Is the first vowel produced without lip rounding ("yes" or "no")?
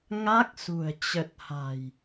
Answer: yes